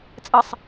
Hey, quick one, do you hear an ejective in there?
yes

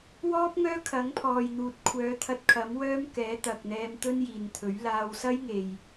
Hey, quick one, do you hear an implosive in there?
no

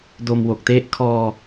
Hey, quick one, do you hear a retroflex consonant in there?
no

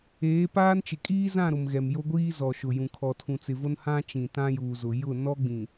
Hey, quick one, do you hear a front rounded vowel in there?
no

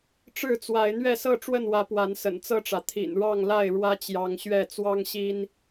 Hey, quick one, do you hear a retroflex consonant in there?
yes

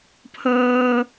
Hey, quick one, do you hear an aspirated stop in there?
yes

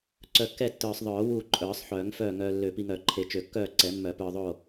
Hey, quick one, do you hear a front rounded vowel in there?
yes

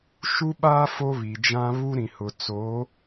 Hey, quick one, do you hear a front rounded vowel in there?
no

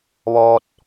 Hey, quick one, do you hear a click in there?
no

